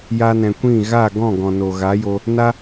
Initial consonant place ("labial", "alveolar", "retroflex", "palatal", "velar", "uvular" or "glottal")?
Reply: palatal